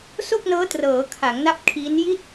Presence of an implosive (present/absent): absent